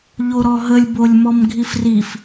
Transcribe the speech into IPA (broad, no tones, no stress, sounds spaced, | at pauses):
ʎ o ɾ ɔ ɦ ə lʲ b o lʲ m ɔ m ɡʱ i f r i f